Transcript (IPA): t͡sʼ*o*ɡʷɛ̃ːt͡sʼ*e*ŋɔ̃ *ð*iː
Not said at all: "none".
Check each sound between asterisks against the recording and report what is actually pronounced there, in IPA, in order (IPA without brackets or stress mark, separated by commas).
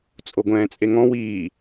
o, e, w